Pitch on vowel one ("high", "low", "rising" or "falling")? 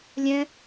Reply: high